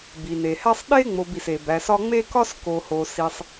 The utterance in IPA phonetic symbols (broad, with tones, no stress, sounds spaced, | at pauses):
b i˩ n e˩ h æ˦ sˤ ɗ e˥ ŋ͡m o˨ b i˩ s e˩ b æ˨ s ɒ˦ ŋ͡m e˥ k ɒ˥ s k o˨ h o˨ s i˨ sˤ